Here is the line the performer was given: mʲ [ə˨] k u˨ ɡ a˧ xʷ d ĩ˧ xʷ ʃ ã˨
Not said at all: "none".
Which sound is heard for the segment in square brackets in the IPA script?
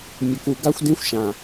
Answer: ə˨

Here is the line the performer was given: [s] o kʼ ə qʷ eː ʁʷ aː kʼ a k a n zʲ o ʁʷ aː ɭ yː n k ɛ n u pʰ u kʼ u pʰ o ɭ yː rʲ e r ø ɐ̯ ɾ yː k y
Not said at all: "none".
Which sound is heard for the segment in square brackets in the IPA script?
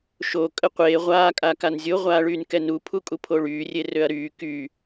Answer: ʃ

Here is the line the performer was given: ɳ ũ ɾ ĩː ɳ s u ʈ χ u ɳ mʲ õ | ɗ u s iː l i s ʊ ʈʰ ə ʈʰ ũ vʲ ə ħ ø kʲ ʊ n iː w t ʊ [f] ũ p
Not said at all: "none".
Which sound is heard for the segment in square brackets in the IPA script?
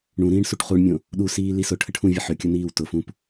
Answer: f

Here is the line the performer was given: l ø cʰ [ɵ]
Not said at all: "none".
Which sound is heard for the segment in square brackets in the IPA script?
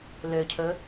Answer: ɵ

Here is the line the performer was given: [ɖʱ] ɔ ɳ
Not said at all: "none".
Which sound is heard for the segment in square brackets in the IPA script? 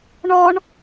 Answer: ɳ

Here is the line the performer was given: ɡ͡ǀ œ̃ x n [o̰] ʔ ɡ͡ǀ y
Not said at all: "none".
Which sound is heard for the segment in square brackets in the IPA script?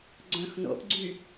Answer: o̰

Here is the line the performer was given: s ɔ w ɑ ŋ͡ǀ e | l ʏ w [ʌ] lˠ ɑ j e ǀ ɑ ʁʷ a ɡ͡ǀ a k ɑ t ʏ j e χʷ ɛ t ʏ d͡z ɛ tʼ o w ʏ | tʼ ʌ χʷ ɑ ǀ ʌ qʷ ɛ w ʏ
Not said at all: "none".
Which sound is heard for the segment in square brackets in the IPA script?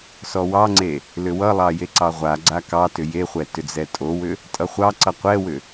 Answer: ʌ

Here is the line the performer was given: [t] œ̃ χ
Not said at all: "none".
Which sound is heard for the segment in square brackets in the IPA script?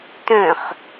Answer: t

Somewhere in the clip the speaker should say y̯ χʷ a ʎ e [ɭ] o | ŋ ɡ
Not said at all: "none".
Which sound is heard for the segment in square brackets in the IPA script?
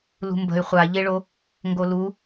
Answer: ɭ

